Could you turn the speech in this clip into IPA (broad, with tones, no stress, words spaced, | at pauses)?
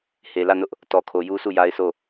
he˨lä˦˨nʊ˦ʔ | tɔ˨kʰo˨ju˦su˦˨ ja˦ɪ̯sʰo˦˨